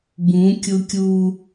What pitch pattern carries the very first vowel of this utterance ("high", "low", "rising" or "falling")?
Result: rising